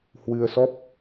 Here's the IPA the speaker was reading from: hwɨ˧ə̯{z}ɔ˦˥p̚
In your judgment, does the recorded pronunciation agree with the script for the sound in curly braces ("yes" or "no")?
no